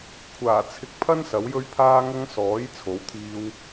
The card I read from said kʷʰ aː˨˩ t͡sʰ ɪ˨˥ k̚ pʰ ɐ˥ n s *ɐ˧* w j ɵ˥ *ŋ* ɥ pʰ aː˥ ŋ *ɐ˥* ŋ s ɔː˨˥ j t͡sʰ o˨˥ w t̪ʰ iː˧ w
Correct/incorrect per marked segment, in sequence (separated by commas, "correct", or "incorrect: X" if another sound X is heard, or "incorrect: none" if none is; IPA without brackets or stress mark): incorrect: ɐ˨˥, incorrect: none, correct